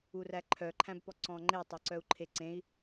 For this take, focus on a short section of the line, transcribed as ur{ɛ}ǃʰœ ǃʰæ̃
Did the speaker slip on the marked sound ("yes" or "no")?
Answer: yes